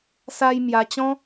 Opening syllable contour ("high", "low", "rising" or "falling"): high